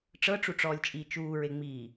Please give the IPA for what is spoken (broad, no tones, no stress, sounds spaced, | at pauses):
ʈ͡ʂ ɤ ʈ͡ʂ u ʈ͡ʂ ɔː lʲ t͡ʃʼ iː t͡ʃ uː ɹ e ŋ͡m iː